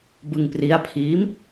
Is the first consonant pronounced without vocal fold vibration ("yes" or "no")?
no